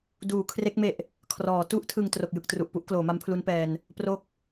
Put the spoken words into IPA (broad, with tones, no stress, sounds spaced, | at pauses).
d uː˩˦ kʰ r e˦˥ k̚ m e˨˩ ʔ | kʰ r ɔː˩˦ t u˥˩ ʔ tʰ ɯ˨˩ ŋ t r o˨˩ k̚ j ɯ˨˩ k̚ t r u˨˩ ʔ p u˦˥ ʔ k l oː˩˦ m a˦˥ m pʰ l u˦˥ n p ɛː˧ n | p r o˦˥ k̚